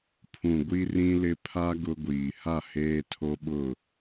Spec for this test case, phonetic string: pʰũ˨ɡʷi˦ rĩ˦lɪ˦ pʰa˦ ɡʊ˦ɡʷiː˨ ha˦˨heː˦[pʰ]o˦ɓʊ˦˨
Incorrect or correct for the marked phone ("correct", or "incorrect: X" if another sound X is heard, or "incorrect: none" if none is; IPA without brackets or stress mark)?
incorrect: tʰ